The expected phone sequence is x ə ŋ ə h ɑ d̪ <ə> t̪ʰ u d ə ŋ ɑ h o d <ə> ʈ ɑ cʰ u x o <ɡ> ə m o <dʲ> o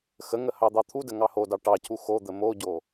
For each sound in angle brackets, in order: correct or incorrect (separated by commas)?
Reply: incorrect, incorrect, incorrect, incorrect